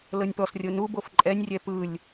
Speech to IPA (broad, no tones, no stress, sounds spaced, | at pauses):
l ɤ nʲ p ɔ s rʲ o n u b o f ǃʼ ɛ nʲ rʲ ɛ p ɯ lʲ